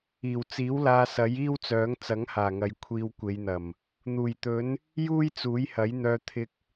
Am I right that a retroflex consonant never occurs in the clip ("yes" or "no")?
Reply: yes